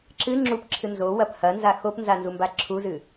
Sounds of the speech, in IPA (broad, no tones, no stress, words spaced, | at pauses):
ǁɨ ŋ͡ǁupǁʰɨ nzowɐp hɐnza xopnzanzumba ǁʰuzɨ